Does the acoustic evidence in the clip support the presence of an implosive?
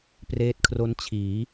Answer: no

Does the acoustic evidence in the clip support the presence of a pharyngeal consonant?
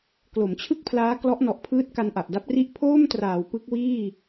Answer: no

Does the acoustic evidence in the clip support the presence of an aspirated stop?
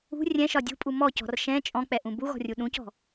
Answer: no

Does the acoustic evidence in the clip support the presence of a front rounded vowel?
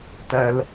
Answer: no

